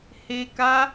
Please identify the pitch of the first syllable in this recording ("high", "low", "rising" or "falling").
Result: low